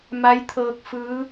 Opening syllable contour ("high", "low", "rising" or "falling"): rising